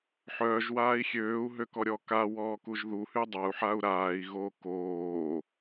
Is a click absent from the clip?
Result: yes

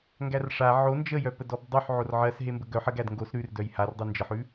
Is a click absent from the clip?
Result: yes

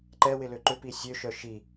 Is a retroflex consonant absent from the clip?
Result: yes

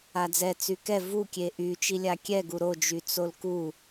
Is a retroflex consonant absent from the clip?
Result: yes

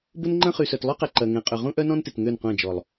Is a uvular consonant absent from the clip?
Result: no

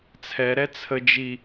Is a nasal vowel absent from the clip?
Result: yes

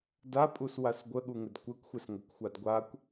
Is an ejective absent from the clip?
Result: no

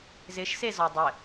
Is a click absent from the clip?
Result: yes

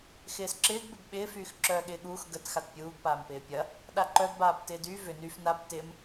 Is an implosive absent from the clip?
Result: no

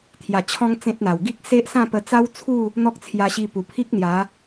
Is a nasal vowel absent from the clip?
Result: no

